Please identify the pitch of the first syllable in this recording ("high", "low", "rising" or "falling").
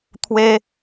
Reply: high